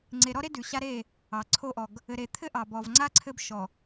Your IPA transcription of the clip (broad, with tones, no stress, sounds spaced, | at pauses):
ŋ͡ǀ e˨ ɾ ɔ˦ ɾ e˦ d ʉ˨ ɕ a˦ ɾ e˦˨ | ɑ˨ ǀʰ o˦ ʔ ɔ˨ ɡ | ɘ˨ ɾ e˨ t̪ʰ ɘ˦ ʔ ɑ˨ b ɔ˨ v ŋ͡ǀ a˦ ǀʰ ɘ˦ b ʃ ɔ˨